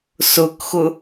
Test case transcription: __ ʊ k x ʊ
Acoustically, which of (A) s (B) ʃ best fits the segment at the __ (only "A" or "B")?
A